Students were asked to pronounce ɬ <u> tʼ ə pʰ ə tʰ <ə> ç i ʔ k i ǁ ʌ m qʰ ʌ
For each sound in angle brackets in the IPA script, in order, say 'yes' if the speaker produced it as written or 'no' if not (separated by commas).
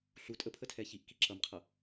yes, no